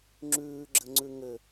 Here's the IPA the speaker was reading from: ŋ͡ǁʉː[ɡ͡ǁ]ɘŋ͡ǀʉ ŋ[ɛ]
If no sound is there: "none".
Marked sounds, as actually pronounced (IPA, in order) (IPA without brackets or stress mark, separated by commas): ɡ͡ǁ, ɘ